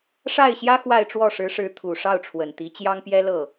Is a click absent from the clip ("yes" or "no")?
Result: yes